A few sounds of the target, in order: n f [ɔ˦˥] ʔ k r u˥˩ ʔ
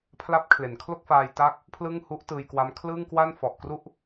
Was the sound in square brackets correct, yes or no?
no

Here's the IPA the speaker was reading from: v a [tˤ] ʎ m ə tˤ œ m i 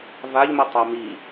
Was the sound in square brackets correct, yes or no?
no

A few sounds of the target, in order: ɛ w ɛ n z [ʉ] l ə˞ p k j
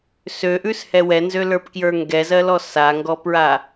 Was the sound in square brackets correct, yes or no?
no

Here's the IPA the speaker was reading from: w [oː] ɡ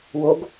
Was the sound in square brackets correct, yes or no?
no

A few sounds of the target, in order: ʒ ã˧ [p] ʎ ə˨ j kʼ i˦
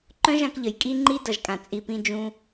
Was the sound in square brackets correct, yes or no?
no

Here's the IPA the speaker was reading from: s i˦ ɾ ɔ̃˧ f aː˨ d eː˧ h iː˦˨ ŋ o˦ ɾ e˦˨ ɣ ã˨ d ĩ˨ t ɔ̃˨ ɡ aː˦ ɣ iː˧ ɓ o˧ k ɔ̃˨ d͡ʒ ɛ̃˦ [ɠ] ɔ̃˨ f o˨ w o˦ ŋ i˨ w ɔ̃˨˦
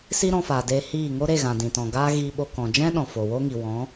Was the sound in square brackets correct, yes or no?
no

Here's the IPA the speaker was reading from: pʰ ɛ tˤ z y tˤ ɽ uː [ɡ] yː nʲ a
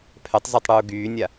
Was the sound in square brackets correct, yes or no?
yes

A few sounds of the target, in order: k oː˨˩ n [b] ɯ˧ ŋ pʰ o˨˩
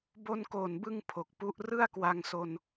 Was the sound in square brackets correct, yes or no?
yes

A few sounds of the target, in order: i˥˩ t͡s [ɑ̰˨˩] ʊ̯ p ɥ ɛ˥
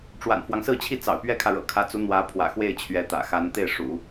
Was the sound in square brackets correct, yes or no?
yes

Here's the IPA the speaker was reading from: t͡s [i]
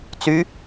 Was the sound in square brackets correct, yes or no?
no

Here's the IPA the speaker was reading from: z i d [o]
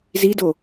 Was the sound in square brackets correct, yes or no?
yes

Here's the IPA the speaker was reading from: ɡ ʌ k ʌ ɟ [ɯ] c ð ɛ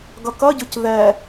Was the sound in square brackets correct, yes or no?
yes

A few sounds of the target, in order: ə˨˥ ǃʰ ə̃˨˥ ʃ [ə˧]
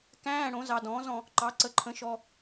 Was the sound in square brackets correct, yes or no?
no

